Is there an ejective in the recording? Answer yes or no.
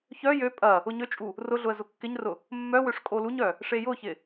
yes